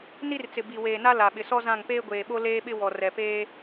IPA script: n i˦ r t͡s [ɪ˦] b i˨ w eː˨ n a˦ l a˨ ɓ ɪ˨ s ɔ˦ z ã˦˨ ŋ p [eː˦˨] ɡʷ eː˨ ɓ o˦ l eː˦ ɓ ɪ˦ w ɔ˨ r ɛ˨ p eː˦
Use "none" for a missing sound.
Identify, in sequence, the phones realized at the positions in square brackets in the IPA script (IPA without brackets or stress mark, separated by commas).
ɪ˨, eː˦